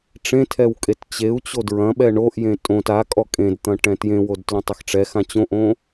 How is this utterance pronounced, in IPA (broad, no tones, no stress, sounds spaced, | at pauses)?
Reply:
ʈ͡ʂ ẽ tʰ ɛ w kʼ e t t͡ɕ e u̯ t͡ɕ o d ɹ ɐ̃ ɓ ɛ ɳ o ʔ j ẽ tʼ õ t a kʼ ɔ kʼ ẽ d t̪ ɐ̃ ʈ ɛ̃ t j ẽ w o d t l õ tˤ ɐ x ʈ͡ʂ ɛ x ã t͡ɕ õ ʔ õ